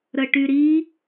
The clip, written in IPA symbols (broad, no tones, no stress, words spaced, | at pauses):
ɾəʈyɾi